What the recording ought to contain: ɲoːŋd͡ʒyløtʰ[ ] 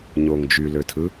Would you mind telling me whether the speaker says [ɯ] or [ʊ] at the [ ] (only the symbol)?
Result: ɯ